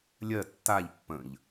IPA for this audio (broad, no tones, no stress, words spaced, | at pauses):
lʲɜ tːaʎ pːə̃ʎ